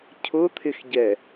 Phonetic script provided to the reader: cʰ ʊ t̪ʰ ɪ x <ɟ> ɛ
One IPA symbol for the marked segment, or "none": ɟ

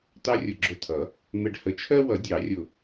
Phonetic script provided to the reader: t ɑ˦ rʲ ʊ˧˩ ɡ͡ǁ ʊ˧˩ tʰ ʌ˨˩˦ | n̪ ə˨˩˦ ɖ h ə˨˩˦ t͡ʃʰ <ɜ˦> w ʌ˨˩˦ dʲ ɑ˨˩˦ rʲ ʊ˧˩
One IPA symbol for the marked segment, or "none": ɜ˦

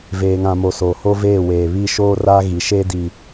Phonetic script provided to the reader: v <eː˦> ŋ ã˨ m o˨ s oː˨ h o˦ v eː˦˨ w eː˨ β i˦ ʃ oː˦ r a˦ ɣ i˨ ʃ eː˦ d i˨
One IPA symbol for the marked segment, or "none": eː˨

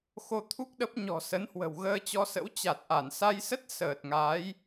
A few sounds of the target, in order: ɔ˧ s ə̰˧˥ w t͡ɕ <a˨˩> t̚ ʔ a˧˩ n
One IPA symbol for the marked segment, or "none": a˨˩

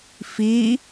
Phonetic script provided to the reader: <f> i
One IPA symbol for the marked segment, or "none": f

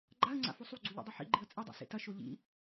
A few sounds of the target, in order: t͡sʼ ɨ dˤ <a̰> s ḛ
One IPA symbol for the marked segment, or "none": a̰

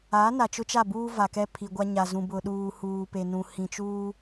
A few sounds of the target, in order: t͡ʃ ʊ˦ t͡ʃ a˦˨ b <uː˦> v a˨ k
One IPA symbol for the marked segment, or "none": uː˦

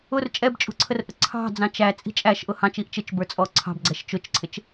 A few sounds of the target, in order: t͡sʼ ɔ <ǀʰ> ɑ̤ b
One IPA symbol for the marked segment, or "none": ǀʰ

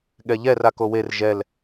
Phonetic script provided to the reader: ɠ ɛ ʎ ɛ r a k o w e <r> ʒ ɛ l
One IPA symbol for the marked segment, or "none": r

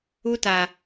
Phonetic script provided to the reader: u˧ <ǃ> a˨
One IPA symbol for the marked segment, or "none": t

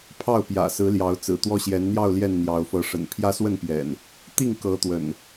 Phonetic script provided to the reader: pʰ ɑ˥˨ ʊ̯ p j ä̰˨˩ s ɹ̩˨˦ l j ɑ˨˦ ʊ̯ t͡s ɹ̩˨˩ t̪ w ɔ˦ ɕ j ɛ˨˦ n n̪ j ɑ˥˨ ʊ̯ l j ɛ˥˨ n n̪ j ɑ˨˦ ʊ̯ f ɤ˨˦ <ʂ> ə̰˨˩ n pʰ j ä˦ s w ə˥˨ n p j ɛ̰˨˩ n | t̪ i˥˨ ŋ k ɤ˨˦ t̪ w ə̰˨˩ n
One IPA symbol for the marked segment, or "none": ʂ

